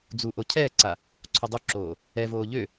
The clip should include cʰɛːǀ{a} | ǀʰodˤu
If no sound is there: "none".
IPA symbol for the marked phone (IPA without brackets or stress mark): a